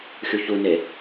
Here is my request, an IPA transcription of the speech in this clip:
xʲuçune

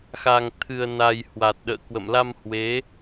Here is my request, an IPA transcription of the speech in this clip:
xa˨˩ŋt̪ʰɨ˨˩ə̯na˨˩j hwa˨˩t̚ɗə̰ː˧˨kwə̰˧˨m la˧mhwe˨˦

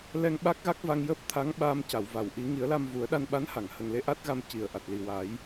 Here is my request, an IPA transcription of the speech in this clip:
lɛ˧ŋɓa˦˥k̚ɣa˦˥k̚ va˧ŋjəː˦˥p̚t̪ʰa˧˥ŋɓaː˧m ca˨˩˨wva˨˩˨wʔi˨˩˦ ŋi˨˩˦ə̯la˧mvu˨˩˦ə̯ ɗa˧nɓa˧˥nha˨˩˨ŋ hə˨˩ŋle˧ ʔa˦˥t̚ɣa˧m ci˨˩˨ə̯ ʔa˨˩t̚li˨˩ wa˨˩˦j

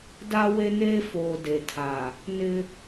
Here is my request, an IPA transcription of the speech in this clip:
da˦ we˦neː˦ foː˨ de˨tʰa˨ | nɪ˦

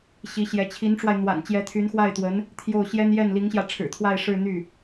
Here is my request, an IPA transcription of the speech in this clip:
ɕi˧˥ɕjɛ˧˥ t͡ɕʰi˧˥nʈ͡ʂwa˧ɪ̯n̪wa̰˨˩n t͡ɕjɛ˧˥t̪ʰy˧˥nxwa˥˩ɪ̯t̪wə˧˥n | t̪ʰjo˥˩ʊ̯ɕjɛ˥n jɛ˥˩nli˧˥ŋɕjä˧ ʈ͡ʂʰɻ̩˨˩t̪ʰwa˥˧ɪ̯ ʂɻ̩˥˧n̪y˥˩

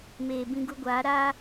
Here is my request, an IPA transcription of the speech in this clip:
meː˨ bĩ˦ɡu˦ɡʷaː˨˦ ɾaː˦

